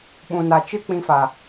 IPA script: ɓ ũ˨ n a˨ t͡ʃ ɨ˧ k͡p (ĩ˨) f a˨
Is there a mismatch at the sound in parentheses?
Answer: no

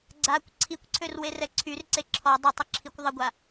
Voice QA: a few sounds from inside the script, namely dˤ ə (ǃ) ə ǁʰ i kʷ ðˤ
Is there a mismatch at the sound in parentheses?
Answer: yes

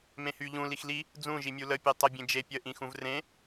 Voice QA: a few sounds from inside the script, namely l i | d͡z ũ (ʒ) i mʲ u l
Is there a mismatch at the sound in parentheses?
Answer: no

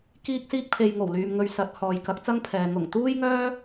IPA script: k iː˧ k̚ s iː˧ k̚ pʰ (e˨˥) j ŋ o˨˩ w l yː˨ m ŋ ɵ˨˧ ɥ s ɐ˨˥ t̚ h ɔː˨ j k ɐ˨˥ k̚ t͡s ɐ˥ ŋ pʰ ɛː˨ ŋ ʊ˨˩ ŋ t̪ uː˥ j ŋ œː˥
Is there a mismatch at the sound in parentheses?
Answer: yes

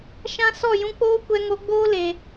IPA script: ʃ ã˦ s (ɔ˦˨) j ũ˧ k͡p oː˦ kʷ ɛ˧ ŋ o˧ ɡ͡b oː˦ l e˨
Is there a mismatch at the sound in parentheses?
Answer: no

